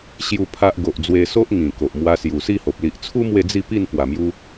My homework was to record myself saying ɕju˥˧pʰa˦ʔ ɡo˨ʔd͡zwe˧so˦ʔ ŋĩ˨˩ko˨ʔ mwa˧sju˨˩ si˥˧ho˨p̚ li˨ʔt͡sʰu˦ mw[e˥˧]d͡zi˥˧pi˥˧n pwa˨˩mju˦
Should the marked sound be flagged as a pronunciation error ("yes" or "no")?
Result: no